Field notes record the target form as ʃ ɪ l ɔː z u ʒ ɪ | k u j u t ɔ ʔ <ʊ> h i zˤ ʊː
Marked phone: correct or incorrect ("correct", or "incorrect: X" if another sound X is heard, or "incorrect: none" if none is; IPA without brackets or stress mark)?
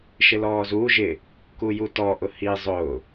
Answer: correct